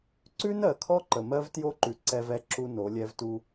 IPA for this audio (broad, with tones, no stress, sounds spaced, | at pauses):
ǀ ʉ˦ n ɜ˨ kʰ ɔ˦ ǃ ə˨ m ɜ˦ v t j o˦ ǃ ʉ˨ ǀ ɛ˦ v ɛ˦ ǁ u˦ n o˨˦ lʲ ɛ˦ v t u˦